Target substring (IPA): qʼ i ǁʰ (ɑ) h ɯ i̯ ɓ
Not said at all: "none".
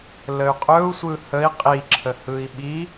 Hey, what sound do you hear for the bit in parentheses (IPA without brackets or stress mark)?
ə